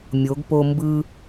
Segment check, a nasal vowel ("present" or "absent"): absent